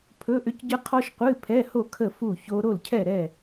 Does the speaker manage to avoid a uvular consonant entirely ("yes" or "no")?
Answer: no